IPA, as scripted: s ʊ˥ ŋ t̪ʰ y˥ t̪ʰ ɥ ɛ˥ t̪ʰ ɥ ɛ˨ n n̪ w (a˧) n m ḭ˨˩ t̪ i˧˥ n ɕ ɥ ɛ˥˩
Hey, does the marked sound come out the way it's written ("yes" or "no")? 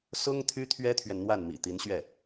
no